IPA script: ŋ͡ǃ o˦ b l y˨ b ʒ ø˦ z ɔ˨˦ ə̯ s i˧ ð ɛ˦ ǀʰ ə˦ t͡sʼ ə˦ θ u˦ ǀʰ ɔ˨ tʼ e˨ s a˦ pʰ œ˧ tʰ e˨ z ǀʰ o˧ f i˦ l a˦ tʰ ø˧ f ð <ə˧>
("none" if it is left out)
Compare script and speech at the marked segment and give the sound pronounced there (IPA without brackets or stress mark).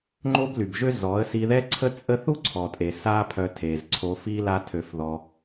ɔ˧